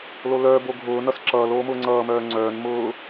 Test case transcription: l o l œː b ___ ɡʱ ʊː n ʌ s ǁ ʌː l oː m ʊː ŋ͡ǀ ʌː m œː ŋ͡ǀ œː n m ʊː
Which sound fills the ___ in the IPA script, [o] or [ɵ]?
o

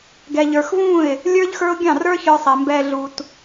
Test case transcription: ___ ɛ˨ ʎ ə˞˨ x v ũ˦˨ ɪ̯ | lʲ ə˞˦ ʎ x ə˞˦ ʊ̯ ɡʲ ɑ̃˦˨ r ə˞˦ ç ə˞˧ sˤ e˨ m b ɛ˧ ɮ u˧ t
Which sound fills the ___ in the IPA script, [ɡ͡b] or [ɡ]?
ɡ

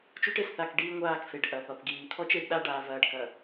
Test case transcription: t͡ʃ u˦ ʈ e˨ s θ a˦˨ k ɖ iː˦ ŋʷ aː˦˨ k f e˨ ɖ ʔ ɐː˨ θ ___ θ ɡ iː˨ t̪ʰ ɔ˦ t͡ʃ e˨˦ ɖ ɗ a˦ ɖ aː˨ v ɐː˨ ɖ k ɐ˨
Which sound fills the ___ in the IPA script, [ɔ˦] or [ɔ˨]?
ɔ˨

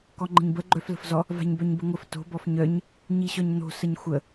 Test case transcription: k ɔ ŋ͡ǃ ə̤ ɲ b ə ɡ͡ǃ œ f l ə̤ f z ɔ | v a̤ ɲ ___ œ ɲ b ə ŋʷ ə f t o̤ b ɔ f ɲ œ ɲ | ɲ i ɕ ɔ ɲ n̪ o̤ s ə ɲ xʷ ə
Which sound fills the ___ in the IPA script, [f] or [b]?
b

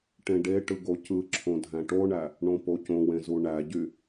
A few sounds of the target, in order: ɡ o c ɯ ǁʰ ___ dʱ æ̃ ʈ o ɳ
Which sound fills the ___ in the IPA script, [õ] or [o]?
õ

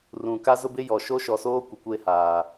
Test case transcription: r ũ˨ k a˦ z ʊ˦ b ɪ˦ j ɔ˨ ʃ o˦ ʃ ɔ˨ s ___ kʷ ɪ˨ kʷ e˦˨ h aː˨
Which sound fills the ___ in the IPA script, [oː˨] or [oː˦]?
oː˦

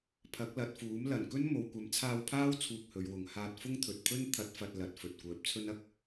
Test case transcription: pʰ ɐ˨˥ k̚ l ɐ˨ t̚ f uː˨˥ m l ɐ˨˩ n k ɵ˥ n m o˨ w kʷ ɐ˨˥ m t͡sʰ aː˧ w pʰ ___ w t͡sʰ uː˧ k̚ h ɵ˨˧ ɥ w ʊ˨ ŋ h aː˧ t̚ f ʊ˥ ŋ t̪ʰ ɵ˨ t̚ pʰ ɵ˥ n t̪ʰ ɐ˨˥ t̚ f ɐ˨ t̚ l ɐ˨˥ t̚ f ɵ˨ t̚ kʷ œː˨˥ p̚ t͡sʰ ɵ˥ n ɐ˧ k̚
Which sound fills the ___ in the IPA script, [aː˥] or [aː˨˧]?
aː˥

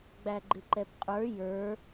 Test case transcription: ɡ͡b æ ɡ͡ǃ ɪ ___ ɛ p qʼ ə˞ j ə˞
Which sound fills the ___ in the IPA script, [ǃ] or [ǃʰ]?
ǃ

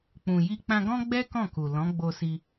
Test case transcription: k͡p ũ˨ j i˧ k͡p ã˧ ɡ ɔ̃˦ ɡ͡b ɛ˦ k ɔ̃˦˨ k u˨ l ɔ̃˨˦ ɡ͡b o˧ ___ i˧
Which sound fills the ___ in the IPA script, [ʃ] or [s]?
s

